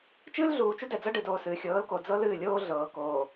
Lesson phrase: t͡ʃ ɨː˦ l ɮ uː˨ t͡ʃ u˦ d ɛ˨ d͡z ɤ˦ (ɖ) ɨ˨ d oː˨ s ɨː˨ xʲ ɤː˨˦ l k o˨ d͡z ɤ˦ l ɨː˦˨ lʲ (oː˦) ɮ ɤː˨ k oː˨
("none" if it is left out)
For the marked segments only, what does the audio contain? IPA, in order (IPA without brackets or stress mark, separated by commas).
ɖ, oː˦